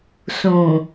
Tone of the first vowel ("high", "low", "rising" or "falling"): low